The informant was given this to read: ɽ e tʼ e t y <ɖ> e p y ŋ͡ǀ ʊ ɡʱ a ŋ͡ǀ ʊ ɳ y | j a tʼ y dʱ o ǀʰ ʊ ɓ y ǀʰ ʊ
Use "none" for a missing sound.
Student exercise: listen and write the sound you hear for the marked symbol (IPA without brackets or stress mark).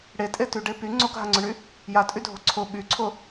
ɖ